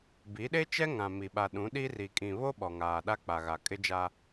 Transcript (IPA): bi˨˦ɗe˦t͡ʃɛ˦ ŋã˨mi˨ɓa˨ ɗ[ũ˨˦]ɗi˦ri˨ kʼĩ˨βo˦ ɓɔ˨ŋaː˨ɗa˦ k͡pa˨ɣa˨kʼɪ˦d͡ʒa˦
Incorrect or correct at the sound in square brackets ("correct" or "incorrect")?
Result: correct